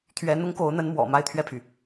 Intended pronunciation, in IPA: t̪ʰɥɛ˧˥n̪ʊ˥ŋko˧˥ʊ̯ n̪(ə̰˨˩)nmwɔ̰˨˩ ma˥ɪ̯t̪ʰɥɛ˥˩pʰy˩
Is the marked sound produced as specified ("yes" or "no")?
no